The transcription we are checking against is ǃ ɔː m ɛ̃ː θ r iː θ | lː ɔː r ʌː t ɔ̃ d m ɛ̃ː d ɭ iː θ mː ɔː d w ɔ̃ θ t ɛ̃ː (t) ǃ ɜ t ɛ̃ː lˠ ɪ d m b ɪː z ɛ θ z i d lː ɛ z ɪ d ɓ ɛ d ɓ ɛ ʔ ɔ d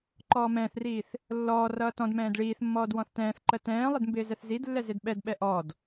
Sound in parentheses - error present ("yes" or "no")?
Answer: yes